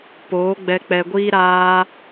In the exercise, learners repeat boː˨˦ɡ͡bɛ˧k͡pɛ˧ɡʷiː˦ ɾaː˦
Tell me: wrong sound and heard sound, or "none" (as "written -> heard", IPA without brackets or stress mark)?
b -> p